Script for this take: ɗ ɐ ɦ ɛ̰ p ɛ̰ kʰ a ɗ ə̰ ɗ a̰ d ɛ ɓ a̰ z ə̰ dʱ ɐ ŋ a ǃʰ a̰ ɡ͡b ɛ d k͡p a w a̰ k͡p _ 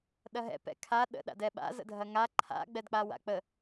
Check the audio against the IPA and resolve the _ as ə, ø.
ə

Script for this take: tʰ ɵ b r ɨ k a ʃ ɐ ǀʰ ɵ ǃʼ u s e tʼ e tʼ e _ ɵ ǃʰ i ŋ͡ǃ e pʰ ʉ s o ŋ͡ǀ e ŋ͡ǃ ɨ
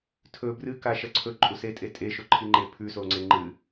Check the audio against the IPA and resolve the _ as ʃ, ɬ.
ʃ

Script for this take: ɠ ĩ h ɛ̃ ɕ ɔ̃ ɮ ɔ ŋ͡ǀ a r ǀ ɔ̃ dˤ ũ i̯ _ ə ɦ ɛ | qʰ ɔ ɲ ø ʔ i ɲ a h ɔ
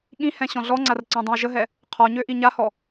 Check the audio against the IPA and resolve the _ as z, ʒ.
ʒ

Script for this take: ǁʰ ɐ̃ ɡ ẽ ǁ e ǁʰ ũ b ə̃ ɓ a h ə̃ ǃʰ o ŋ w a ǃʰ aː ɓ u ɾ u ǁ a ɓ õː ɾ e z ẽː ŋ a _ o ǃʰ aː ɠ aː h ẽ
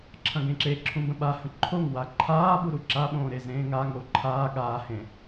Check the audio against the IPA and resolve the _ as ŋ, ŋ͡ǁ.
ŋ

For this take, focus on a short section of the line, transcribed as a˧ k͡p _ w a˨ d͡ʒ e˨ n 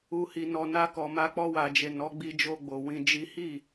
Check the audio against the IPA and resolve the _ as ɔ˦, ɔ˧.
ɔ˧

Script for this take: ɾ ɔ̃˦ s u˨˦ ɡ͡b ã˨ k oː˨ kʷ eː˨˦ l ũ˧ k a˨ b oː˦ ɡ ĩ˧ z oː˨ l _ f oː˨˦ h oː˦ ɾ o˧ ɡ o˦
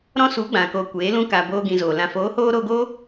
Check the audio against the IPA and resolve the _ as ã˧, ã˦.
ã˧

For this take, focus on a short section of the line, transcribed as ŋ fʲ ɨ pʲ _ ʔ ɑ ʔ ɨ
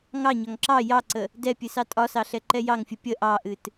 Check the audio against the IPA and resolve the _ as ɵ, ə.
ə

